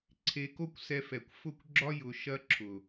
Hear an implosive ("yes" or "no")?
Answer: no